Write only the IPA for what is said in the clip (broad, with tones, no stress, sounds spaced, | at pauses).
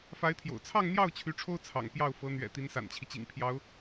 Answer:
f a˧˥ ɪ̯ t̪ʰ j o̰˨˩ ʊ̯ t͡sʰ ɑ˥˧ ŋ n̪ j ɑ˥˩ ʊ̯ t͡ɕʰ y˧˥ ʈ͡ʂʰ o˥ ʊ̯ t͡sʰ ɑ̰˨˩ ŋ p j ɑ˥˩ ʊ̯ f ɤ˧˥ n̪ ɥ ɛ̰˨˩ t̪ i˧˥ n s a̰˨˩ n t͡ɕʰ i˦ t͡ɕ ḭ˨˩ ŋ pʰ j ɑ˧˥ ʊ̯